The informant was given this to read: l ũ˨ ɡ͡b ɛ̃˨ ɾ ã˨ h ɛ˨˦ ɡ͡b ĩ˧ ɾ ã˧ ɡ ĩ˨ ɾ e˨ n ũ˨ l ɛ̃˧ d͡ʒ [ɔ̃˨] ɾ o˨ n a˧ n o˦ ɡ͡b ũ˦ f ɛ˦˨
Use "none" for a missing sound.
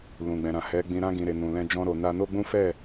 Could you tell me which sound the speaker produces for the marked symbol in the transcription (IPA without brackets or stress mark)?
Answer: ɔ̃˧